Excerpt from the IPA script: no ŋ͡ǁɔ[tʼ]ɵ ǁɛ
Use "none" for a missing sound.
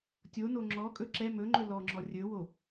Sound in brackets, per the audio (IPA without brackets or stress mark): kʼ